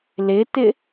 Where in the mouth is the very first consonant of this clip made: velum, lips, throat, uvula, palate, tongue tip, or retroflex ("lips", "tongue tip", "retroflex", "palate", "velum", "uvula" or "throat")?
tongue tip